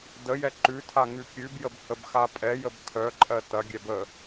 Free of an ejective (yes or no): no